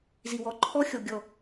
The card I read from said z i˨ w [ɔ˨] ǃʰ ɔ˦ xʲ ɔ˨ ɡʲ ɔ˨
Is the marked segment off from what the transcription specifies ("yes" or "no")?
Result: no